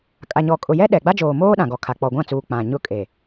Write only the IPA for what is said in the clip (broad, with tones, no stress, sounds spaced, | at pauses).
kʼ a˨ ɲ ɔ˨ kʼ ʊ˨ j ɛ˦ ɗ ɛ˨ ɡ͡b a˦ d͡ʒ oː˨ m oː˦ ɗ ã˨ ɡ ɔ˨ kʰ a˨ k͡p ɔ˨ ɡʷ ã˦˨ t͡s uː˨ k͡p ã˨ ɲ ʊ˦ kʼ e˨